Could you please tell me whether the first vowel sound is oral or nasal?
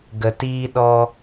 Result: oral